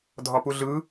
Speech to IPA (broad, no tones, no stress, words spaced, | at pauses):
dʱɒpuɮɯ